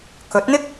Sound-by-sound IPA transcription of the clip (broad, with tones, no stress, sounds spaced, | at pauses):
k ɵ˨˥ t̚ n̪ ɪ˥ k̚